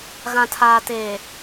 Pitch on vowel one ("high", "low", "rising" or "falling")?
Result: low